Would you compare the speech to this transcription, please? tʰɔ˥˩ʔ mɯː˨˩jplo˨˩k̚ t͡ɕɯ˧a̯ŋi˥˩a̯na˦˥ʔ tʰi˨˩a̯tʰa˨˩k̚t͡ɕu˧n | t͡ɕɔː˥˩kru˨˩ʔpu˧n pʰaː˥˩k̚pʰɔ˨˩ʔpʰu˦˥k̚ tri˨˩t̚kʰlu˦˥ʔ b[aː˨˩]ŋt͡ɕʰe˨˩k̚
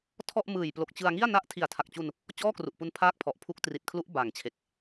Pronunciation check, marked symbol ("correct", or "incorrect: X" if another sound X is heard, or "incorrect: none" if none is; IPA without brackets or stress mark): correct